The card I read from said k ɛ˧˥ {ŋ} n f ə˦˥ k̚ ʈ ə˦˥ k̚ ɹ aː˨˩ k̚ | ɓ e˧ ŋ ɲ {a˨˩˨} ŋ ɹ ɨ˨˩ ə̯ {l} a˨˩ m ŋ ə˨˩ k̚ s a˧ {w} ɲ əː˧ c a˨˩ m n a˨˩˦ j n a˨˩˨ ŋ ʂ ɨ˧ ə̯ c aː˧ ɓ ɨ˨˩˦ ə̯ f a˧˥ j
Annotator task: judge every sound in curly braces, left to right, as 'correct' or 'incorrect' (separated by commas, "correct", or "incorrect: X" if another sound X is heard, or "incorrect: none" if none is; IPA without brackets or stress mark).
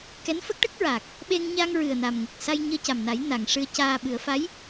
incorrect: none, incorrect: a˧, incorrect: n, incorrect: j